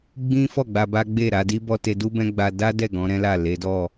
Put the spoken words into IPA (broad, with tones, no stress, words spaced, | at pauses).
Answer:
ɡ͡bĩ˦fɔ˦˨ ɡ͡ba˧ba˦ ɡ͡be˦˨ɾa˨˦di˦bɔ˦ te˧du˦bɛ̃˦ ɡ͡ba˧da˦dɛ˦˨ ɡɔ̃˨˦ɾɛ̃˦la˦˨ le˨˦dɔ˦˨